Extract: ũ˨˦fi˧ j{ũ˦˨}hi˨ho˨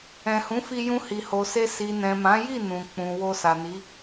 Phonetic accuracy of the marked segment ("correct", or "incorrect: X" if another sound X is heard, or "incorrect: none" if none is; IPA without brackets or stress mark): incorrect: ũ˧